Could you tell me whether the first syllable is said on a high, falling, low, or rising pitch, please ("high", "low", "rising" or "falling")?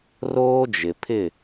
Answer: high